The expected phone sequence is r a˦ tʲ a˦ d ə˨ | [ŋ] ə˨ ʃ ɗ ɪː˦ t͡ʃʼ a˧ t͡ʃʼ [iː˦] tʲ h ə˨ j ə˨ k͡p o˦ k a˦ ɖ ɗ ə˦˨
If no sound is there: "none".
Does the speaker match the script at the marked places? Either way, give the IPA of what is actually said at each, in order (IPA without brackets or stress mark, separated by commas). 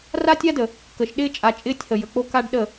k, ɪː˦